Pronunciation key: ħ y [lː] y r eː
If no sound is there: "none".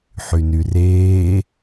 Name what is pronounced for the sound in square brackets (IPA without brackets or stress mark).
n